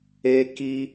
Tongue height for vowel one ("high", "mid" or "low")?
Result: mid